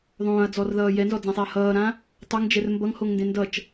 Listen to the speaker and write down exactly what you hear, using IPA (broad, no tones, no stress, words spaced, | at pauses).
ðˤõːɐ̯d͡zɔrðʌː jɛnzɔd͡zãsˤeɐ̯ hʌːɾã | tˤʌŋd͡ʒɛr mbʌŋhoŋndẽ ndʌt͡ʃ